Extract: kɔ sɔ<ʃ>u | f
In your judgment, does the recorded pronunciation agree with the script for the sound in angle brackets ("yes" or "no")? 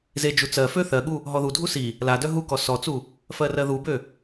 no